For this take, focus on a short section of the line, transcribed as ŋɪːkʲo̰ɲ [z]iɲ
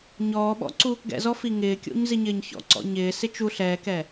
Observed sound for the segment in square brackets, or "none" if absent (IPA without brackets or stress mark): z